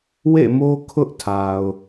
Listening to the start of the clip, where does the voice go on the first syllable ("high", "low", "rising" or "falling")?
falling